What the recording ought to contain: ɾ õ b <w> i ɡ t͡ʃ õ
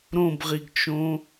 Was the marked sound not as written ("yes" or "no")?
yes